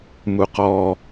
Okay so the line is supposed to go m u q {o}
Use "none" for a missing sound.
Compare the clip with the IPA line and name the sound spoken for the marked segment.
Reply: ɔ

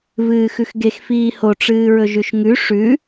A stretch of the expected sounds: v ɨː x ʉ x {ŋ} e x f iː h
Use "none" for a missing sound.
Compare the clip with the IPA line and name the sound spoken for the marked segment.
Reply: ɡ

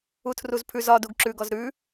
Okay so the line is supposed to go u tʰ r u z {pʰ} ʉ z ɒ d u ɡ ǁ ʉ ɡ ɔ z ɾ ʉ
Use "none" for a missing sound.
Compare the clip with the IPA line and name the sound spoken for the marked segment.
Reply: pʰ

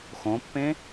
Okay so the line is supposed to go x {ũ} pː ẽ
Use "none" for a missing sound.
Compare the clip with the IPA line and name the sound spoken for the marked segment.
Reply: õ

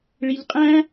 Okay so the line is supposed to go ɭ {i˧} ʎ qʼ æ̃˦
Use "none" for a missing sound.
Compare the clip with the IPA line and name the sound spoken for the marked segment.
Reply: i˧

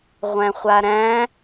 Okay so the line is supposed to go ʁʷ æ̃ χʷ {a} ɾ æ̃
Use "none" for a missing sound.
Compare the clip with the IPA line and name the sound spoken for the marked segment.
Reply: a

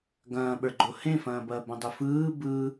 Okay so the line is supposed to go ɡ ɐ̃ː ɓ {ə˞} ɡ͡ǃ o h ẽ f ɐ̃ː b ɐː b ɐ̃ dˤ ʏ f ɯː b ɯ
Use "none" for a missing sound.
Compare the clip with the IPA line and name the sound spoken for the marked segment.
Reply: ə˞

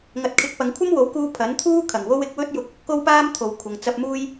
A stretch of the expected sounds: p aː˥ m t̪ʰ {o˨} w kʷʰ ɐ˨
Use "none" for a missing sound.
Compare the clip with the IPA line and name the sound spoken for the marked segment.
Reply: o˨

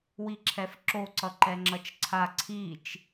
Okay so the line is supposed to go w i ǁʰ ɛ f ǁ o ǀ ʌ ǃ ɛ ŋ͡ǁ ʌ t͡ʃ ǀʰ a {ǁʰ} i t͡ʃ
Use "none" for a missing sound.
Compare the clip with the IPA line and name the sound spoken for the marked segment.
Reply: ǀʰ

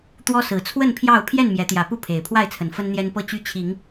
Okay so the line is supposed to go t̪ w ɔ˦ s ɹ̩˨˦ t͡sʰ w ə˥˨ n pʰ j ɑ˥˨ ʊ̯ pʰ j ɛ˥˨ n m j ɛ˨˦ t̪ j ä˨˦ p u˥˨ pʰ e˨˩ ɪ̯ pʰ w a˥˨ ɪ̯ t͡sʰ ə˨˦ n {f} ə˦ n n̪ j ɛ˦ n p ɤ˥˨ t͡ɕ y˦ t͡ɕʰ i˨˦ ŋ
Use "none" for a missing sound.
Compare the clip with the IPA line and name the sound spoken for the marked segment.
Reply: f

